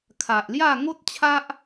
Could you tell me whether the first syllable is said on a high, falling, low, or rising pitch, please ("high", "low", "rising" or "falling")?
low